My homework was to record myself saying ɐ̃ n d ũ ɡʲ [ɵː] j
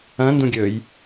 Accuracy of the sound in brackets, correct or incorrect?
correct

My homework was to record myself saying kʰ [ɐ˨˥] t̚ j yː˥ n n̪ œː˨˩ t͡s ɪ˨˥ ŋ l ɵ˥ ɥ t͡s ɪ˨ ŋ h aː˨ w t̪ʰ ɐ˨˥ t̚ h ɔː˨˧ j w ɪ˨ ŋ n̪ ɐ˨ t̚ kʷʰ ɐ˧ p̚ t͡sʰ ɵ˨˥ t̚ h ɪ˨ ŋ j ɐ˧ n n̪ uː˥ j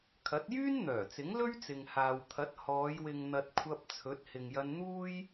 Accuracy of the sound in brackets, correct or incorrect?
correct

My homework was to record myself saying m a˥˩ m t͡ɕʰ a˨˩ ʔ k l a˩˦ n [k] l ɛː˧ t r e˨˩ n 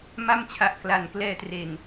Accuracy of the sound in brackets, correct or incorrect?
correct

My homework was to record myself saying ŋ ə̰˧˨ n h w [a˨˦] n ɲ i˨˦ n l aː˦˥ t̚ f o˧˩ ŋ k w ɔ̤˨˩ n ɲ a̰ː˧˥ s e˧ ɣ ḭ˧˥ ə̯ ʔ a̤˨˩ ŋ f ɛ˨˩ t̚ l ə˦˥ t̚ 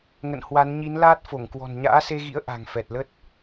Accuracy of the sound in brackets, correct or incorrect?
correct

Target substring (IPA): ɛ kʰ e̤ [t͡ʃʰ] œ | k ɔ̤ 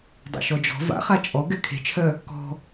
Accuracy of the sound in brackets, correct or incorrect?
correct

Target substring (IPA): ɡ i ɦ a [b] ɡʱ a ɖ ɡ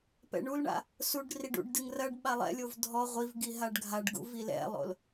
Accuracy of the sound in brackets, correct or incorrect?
incorrect: ɖ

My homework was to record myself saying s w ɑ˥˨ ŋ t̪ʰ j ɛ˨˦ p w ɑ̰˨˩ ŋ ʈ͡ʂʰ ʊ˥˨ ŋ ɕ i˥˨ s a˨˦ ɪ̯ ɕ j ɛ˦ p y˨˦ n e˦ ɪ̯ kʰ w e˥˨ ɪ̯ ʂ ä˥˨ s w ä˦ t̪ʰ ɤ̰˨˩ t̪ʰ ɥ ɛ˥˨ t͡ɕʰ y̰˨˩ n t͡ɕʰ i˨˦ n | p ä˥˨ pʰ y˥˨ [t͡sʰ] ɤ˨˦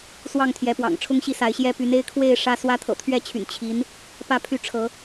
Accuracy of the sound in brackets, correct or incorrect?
incorrect: ʈ͡ʂʰ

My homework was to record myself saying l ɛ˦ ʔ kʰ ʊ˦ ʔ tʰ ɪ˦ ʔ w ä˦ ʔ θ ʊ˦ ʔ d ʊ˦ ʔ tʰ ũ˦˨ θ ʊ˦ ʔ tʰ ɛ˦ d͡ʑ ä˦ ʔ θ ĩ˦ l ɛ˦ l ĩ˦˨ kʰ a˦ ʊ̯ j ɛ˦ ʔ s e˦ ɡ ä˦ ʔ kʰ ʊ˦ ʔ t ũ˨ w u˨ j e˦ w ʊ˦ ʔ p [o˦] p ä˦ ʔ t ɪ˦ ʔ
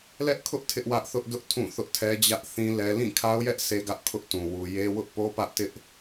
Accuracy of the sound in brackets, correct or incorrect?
correct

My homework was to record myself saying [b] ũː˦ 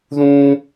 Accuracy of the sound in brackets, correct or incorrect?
incorrect: ð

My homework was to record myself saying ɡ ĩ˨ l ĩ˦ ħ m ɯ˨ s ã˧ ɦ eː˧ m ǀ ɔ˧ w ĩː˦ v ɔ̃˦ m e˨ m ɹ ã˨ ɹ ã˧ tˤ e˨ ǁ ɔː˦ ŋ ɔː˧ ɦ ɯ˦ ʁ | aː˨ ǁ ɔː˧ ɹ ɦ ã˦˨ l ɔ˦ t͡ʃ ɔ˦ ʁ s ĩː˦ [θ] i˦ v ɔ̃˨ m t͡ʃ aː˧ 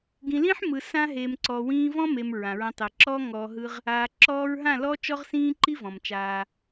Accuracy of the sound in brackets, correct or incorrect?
incorrect: ǃ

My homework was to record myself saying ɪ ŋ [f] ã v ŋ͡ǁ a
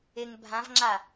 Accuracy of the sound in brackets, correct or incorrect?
incorrect: bʱ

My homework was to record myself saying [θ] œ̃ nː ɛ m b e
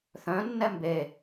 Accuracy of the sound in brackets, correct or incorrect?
correct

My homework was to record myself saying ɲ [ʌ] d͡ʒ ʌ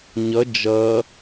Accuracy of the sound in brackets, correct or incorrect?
correct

